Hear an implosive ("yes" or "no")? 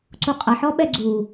yes